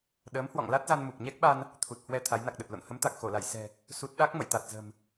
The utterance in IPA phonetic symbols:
ɗ əː˨˦ m h w ɔ̰˧˨ ŋ l a˦˥ t̚ z a˧ n m u˨˩ p̚ ɲ ɛ˦˥ k̚ ɓ a˧ n | t̪ʰ u˨˩ t̚ h w ɛ˧ t̪ʰ a˨˦ j n a˨˩ k̚ ɗ ə˨˩ t̚ l o̰˧˨ n h ə˨˦ m t̪ a˨˩ k̚ x o˧˩ l a˧˩ j s ɛ̤˨˩ | s u˦˥ t̚ ɗ a˦˥ k̚ m ə̰˧˨ j t̪ a˨˩ t̚ z ə̤˨˩ m

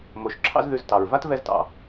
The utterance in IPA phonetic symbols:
m o˨ ʃ ǁʰ ɑ̰˦ z ð ʉ˧ z t ɑ˨ ɹ v a˦ t v ɛ˧ z t ɑ̰˨

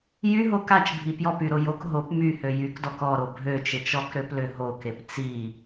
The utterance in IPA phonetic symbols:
j y ɦ o k a t͡ʃ bʱ i p j ɔ p y ɾ o j o k ɦ o p m y h ø j y k d ɔ k ɔ ɾ o bʱ ø t͡ʃ e t͡ʃ ɔ k ɾ ø p l ø ɦ o k e p t͡s i

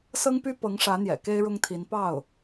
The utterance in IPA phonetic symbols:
s ɤ˥ ŋ p y˥ p ɤ˧˥ ŋ ʂ ä˧˥ n̪ j ɛ̰˨˩ k e˥ ɪ̯ ɻ ʊ˥ ŋ t̪ʰ i˧˥ n p ɑ˥˩ ʊ̯

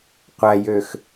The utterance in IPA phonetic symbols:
qʷ æ j ø x

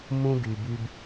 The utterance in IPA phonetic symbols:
m ũ˦ ɡ y˨ b y˦ b

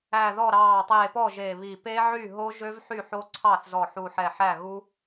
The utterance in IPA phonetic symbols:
æ˧˩ ð ɔ˥˩ ɾ ɑː˧˩ tˤ eː˧˩ p ɔ˥˩ ʒ e˧˩ β i˧˩ p e˦˥ ʕ y˥˩ ɦ o˦˥ ʒ ø˦˥ v ħ y˥˩ ħ o˦˥ ǀʰ ɑ˥˩ θ z ɔ˧˩ ħ u˧˩ ħ ɛ˧˩ ħ æ˥˩ ɣ u˦˥

